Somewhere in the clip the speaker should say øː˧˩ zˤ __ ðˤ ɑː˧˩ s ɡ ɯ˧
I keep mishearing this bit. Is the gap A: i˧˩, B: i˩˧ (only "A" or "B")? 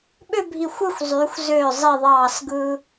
A